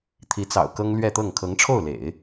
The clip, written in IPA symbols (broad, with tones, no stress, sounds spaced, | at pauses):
t̪ʰ i˧˥ t͡s ɑ̰˨˩ ʊ̯ k ɤ˥ ŋ l ɥ ɛ˥˧ t̪ ɤ˥˩ ŋ kʰ ɤ˧˥ ŋ ʈ͡ʂʰ o˥˩ ʊ̯ l ḛ˨˩˦ ɪ̯